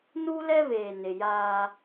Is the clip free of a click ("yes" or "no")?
yes